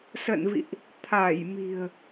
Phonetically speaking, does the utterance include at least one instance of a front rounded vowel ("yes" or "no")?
no